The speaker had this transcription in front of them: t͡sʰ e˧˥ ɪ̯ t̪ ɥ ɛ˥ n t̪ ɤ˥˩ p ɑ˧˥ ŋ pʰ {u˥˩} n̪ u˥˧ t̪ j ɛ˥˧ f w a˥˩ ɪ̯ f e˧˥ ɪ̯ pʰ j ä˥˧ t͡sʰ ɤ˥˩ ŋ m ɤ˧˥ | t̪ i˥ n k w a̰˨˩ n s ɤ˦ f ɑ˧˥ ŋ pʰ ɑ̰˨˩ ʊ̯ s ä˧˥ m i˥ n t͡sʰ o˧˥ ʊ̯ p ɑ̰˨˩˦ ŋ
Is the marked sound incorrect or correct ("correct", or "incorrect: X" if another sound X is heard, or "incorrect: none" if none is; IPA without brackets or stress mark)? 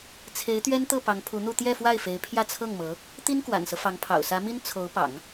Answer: incorrect: u˧˥